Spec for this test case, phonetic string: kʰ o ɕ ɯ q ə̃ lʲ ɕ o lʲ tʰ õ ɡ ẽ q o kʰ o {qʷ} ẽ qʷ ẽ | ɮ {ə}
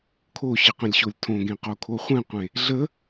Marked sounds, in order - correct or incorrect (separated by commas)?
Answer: incorrect, correct